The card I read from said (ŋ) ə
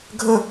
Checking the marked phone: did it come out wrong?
yes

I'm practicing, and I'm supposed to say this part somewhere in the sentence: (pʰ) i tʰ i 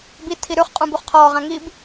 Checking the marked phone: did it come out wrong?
yes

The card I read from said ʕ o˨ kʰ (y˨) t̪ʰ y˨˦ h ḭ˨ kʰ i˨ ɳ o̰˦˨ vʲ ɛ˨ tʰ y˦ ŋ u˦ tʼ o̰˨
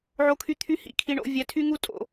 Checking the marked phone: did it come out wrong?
no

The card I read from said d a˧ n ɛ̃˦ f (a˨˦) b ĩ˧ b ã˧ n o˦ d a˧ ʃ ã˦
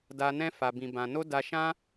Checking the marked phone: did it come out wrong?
yes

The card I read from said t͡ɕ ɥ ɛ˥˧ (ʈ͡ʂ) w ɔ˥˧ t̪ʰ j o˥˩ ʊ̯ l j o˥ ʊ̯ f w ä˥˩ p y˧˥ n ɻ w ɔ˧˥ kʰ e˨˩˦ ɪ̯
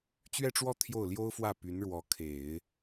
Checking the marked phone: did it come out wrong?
no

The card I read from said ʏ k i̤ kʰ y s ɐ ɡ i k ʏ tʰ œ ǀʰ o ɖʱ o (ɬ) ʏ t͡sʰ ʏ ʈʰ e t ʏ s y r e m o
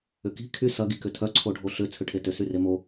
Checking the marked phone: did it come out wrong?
no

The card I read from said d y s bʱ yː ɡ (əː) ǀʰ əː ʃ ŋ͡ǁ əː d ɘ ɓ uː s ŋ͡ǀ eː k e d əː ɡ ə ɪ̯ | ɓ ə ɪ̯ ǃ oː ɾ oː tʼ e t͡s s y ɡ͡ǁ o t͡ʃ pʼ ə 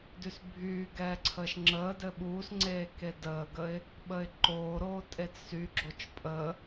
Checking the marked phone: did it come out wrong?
yes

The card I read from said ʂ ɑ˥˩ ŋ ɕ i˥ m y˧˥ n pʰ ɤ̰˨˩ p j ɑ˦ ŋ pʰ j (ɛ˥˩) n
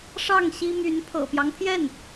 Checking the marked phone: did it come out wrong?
no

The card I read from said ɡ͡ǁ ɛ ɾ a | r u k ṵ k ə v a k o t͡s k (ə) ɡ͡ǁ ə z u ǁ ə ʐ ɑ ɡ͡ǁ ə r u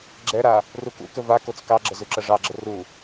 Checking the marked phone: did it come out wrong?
yes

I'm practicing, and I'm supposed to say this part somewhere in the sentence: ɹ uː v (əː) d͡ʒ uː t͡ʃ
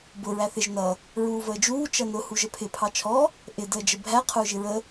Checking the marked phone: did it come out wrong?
no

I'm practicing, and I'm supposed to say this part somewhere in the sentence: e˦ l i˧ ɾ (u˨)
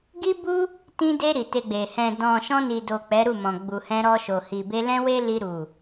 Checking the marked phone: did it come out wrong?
no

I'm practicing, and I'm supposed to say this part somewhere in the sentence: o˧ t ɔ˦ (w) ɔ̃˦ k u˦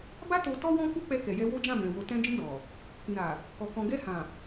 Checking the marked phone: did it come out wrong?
no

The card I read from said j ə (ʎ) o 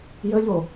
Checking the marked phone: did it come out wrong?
no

